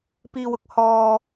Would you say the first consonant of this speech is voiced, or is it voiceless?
voiceless